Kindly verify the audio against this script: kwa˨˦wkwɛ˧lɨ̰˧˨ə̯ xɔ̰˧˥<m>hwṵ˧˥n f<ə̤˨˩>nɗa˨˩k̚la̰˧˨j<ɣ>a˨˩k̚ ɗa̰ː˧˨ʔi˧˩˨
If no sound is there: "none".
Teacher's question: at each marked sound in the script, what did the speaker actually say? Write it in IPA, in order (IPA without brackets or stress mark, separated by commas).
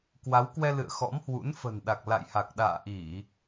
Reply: m, ə̤˨˩, h